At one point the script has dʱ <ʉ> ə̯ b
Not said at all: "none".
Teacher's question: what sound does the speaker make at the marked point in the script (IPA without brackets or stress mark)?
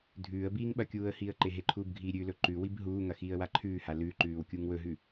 ʉː